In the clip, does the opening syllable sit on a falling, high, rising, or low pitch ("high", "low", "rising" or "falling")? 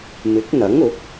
rising